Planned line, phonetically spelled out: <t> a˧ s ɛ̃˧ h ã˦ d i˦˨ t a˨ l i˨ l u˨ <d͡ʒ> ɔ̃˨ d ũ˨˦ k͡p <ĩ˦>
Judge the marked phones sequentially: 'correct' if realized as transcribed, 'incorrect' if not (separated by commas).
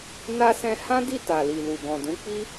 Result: incorrect, incorrect, incorrect